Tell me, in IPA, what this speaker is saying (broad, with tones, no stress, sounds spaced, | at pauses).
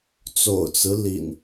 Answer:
t͡s o̰˨˩ ʊ̯ t͡s ɹ̩˦ l ḭ˨˩ n